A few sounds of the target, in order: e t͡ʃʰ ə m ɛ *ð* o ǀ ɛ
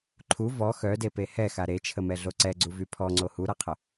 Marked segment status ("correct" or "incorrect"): incorrect